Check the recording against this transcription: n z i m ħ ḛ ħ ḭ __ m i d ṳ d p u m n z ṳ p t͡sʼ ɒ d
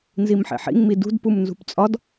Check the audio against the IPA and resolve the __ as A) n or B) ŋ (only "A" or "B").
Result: B